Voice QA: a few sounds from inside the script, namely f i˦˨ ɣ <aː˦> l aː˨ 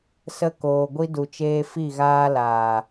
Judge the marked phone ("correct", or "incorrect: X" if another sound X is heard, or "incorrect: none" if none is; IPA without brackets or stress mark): correct